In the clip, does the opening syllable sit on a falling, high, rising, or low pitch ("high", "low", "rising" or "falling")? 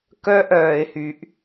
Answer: high